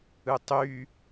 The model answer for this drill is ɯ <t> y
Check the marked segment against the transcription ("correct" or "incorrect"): incorrect